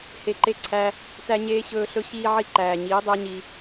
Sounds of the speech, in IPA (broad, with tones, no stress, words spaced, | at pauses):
he˨ǃe˧ǀʰæ˧ | tæ˧ɲeː˧ɕɵː˧ɬɵ˧ ɕiː˧ʕi˧ ǃæː˨ɲiː˨˦dˤæ˦ɲi˧